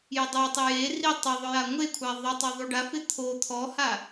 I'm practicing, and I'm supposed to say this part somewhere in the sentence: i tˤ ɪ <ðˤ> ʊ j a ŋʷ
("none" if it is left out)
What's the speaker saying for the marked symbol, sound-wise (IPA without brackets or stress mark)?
ðˤ